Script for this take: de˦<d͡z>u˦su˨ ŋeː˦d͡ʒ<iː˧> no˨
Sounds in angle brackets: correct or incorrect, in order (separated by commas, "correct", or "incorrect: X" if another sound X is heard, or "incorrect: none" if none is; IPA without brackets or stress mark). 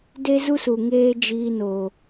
incorrect: z, correct